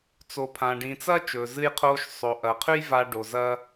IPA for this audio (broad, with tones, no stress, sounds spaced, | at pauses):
t͡s o˩ pʰ ã˩ ɖ ĩ˩ t͡s ɐ˥ t͡ʃ ɵː˩ z ɨ˧ j qʰ oː˧ ʃ sˤ o˩ ʔ ɐ˩ qʰ ʉ˥ j v a˧ ɖ o˩ z ɐ˧